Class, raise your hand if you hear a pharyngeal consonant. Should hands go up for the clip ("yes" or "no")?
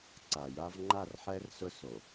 yes